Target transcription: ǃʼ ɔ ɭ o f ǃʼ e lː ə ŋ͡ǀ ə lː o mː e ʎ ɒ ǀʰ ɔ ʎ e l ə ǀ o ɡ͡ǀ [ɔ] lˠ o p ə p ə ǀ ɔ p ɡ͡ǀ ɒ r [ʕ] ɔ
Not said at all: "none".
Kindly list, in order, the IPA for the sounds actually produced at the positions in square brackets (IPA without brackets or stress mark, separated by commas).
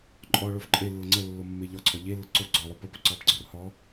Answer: ɔ, h